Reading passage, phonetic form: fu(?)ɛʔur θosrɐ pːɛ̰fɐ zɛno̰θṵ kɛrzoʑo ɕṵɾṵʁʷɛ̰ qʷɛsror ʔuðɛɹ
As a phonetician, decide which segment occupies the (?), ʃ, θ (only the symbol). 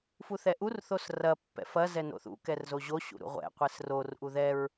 θ